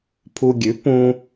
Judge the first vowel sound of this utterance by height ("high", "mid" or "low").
high